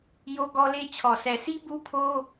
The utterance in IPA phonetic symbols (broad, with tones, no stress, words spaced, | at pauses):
jo˦ɡɔ˦le˦ t͡ɕʰɔ˨sɛ˨si˦ bu˦pʰo˦